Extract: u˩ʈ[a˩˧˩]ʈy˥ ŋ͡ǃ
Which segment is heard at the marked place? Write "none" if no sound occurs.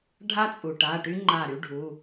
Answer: a˩˧˩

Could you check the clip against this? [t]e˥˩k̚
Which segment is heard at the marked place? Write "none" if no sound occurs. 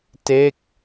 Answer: t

